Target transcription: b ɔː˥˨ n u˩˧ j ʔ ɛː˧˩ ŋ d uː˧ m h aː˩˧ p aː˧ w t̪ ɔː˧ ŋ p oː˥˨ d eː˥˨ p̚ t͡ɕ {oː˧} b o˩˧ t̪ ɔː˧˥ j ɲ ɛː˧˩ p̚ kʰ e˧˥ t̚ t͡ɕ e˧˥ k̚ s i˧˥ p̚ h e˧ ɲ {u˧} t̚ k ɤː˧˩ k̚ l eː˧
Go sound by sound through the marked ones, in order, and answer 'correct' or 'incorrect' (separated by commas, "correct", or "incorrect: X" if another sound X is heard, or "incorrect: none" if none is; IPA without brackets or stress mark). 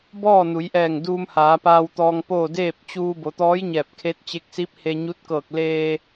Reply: incorrect: uː˧, incorrect: u˧˥